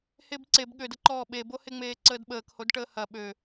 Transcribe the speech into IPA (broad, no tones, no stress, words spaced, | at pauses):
hebǀeb ɠødəǃɔː ɓeboheŋ͡meː ǀəːdɓəːkhodʈəː hɐ ɓø